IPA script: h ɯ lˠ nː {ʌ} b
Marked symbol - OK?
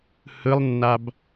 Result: no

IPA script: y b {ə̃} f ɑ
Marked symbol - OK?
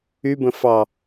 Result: yes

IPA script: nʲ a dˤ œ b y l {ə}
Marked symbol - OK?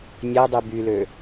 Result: no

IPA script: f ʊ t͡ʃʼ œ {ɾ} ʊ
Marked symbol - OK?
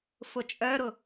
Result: yes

